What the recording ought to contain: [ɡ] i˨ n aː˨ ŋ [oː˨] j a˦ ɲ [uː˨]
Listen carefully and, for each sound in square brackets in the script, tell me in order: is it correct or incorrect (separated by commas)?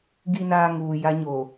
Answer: correct, incorrect, incorrect